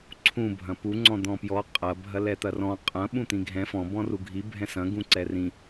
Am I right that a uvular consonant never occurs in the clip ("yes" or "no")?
no